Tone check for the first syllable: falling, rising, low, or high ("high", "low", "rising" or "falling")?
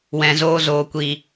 low